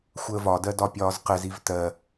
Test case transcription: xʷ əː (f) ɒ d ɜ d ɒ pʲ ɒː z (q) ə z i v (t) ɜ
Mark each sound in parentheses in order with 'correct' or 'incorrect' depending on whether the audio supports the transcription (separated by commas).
incorrect, correct, correct